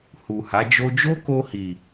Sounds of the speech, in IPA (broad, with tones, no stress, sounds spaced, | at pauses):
h u˨ h a˨˦ d͡ʒ o˦ d͡ʒ o˦ k o˧ h i˨